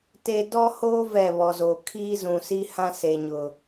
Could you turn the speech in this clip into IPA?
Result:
t e˦ d ɔ˦ h oː˦ v ɛ˦˨ β ɔ˨ z oː˨ kʰ iː˦ z ũ˨ s i˦ h ã˦ s e˨ ɲ ʊ˨

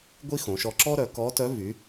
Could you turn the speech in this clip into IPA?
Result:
ɡʷ i˥ x õ˩˧ ʃ ɔ˧ ǁ ɔ˥ ɾ œ˩˧ k ɔ˧˥ t œ˧˥ v y˩˧

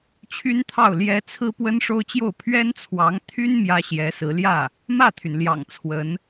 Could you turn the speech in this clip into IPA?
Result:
t͡ɕʰ y˥ n t̪ʰ ɑ˥˩ ʊ̯ l j ɛ˧˥ t͡sʰ ɹ̩˥ p w ə˥ n ʂ o˥ ʊ̯ t͡ɕ j o˥˩ ʊ̯ pʰ ɥ ɛ˥ n t͡sʰ w ɑ˧˥ ŋ t̪ʰ y˥ n m j ä˥ ɕ j ɛ˧˥ s ɹ̩˧˥ l j ä˥˩ | m ä˥˩ t̪ʰ y˩ n l j ɑ̰˨˩ ŋ t͡sʰ w ə˧˥ n

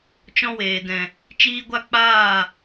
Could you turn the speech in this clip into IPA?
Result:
t͡ʃ ɔ̃˦ w eː˨ d ɛ̃˨ | t͡ʃ iː˦ ɡʷ a˦ k͡p aː˦˨

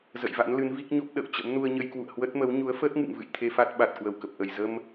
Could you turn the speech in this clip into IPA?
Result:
z ə̰˧˨ j v a̰˧˥ n l ɨ˨˦ n v i˦˥ k̚ ɲ o˦˥ p̚ ɗ ə̰ː˧˨ w t͡ɕ ə̰˧˥ m n u˧ ə̯ ɲ ə˧ j k w ṵ˧˨ ə̯ h w ə˦˥ t̚ m ə˨˦ w ɲ u˨˦ ə̯ f əː˦˥ t̚ ŋ ɨ̰˧˨ ŋ v ɨ̰˧˨ j t̪ʰ e˧ f a˦˥ t̚ ɓ a˨˩ t̚ k w ə˧˩ w k ə˨˩ p̚ ʔ ə˧˩ j z ə˧ m

